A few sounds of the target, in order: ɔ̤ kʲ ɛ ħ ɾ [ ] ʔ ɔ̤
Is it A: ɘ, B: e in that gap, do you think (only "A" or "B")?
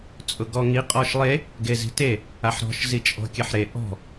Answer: B